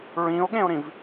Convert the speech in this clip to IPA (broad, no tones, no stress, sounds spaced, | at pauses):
ɹ ĩ o̯ ɠ ẽ o̯ ɾ ĩ v